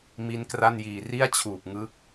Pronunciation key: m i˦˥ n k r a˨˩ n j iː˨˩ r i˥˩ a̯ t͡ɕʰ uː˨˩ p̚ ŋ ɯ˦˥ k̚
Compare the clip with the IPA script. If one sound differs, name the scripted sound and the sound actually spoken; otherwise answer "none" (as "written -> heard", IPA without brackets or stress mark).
a˨˩ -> a˥˩